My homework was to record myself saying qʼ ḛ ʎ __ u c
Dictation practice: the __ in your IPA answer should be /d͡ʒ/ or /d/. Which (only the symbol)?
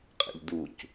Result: d